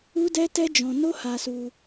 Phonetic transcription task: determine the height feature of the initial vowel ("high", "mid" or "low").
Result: high